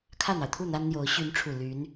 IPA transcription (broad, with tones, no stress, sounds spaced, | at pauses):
kʰ ä˥˩ n̪ ɑ˩ ʊ̯ t̪ʰ u˥˩ n̪ a˥ n n̪ j o˧˥ ʊ̯ ɕ y˧˥ n ʈ͡ʂʰ u˨˩ l y˧˥ n